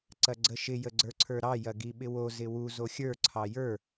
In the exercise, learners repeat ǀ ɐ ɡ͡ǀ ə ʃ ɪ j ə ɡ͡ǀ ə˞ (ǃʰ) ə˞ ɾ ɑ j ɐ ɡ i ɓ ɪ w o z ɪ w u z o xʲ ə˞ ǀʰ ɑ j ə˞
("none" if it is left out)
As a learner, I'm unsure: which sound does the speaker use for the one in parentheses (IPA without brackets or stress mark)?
ǀʰ